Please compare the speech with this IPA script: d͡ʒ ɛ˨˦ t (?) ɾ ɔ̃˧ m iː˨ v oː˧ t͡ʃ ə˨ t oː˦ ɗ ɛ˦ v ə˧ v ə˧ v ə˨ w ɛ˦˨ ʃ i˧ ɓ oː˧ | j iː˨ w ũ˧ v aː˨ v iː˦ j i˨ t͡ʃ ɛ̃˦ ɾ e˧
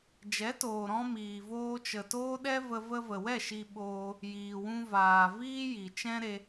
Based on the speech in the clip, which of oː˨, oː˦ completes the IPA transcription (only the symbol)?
oː˨